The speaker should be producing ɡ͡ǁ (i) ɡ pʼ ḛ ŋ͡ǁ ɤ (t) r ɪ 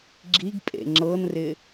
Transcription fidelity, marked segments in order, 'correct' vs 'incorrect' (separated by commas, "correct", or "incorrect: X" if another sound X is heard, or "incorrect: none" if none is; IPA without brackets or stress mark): correct, incorrect: n